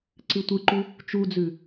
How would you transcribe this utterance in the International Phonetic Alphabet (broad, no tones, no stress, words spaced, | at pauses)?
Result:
ǀɨtʷɨǃu | t͡ʃud͡zʉ